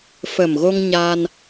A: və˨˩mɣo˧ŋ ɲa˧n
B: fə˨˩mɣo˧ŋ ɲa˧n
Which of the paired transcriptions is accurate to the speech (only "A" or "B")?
B